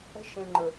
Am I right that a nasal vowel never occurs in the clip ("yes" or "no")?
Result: no